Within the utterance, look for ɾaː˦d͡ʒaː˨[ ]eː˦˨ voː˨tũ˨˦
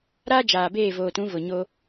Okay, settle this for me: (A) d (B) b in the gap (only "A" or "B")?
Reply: B